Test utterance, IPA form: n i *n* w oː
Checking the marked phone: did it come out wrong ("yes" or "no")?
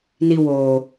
yes